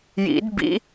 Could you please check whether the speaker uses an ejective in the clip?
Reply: no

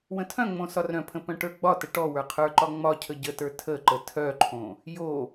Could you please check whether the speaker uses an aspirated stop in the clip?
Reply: yes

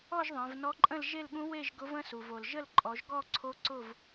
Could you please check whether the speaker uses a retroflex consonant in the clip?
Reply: no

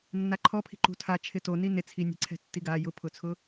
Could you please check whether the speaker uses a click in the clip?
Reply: yes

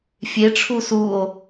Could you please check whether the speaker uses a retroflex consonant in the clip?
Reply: yes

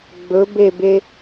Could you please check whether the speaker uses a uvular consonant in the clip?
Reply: no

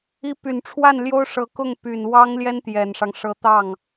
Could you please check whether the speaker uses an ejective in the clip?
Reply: no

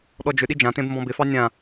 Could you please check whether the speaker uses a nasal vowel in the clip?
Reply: yes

